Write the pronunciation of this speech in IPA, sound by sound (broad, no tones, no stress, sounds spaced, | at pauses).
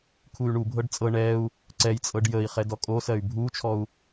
kʰ u y̯ ɳ u bʱ ɤ ɖ t͡sʼ ɤ ɳ ɛ u̯ | ǀ ɛ j t͡sʼ ɤ ɖ j ə i̯ χ ɛ d ɔ kʼ o s ɜ y̯ bʱ u t͡ʃʰ ɔ u̯